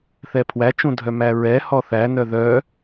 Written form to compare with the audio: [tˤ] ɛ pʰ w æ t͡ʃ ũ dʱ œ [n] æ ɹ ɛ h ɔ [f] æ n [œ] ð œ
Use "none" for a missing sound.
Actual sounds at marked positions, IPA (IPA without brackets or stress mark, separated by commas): θ, m, θ, œ